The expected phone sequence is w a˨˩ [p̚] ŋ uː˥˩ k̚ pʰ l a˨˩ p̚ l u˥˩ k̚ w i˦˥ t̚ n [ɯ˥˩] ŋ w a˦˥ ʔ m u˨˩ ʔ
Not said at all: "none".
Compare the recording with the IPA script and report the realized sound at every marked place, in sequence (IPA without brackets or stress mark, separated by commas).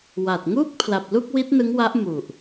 t̚, ɯ˦˥